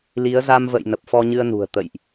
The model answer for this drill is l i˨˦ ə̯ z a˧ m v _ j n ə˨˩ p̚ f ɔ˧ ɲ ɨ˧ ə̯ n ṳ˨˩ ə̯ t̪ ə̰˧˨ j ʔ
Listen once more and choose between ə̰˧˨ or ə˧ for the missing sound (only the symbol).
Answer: ə̰˧˨